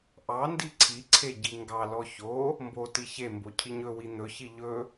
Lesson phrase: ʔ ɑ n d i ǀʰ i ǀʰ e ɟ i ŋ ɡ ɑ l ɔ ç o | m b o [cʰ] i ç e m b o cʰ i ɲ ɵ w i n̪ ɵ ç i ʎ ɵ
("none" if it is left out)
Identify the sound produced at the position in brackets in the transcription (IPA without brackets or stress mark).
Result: t